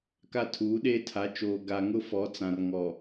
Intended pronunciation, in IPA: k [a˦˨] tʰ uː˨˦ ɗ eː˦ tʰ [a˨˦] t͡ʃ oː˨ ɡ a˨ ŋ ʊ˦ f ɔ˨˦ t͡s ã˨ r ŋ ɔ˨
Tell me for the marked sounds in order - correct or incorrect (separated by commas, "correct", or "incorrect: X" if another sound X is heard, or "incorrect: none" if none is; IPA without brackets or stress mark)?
correct, correct